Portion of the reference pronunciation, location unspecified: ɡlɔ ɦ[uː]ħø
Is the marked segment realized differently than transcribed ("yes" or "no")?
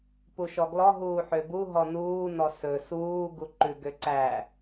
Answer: no